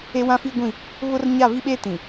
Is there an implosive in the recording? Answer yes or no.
yes